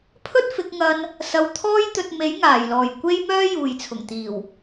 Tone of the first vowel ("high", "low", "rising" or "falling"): high